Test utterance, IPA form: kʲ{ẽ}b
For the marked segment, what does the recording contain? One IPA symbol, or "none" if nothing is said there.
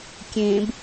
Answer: ẽ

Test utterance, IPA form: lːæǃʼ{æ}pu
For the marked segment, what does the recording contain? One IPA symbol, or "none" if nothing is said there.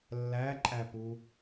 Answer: æ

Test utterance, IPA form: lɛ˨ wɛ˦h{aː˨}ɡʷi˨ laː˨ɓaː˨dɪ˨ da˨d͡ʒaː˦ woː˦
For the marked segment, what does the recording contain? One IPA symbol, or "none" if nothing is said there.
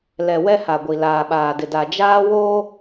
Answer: a˨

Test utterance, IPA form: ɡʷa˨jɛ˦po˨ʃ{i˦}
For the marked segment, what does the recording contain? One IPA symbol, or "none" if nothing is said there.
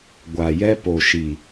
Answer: i˨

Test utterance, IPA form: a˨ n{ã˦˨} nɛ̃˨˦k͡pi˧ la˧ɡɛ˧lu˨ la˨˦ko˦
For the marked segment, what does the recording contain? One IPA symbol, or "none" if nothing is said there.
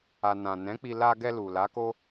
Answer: ã˨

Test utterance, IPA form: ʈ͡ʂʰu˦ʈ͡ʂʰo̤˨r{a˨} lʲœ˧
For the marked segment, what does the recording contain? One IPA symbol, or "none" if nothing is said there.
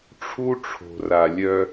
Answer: a˨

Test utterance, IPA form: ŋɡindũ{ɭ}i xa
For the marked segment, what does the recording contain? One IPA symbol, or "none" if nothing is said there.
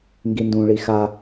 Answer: ɭ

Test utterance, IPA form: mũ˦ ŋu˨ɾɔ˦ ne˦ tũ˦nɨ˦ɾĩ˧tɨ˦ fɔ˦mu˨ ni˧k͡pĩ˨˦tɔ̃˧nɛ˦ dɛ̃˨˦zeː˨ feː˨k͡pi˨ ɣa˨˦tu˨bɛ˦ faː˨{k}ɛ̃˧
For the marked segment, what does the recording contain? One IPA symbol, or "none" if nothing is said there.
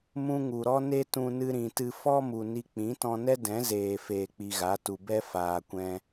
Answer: kʷ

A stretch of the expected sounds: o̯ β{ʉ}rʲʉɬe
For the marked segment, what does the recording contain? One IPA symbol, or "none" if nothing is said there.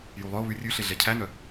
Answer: ʉ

